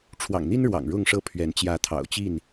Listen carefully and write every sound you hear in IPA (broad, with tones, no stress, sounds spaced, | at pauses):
ʈ͡ʂʰ w ɑ̰˨˩ ŋ n̪ i˦ n ɻ w ɑ̰˨˩ ŋ ɻ ʊ˥˨ ŋ ʂ ɤ˥˨ pʰ ɥ ɛ˨˦ n t͡ɕ j ä˨˦ t̪ʰ ɑ̰˨˩ ʊ̯ t͡ɕ i˥˨ n